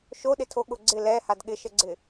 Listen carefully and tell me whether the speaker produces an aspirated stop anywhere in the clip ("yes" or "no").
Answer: yes